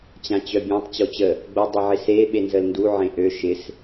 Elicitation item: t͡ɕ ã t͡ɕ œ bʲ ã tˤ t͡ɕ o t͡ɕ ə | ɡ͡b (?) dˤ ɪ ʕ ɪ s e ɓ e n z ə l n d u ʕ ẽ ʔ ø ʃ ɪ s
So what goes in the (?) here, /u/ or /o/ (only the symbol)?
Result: o